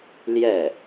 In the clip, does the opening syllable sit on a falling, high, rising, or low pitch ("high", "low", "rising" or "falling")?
falling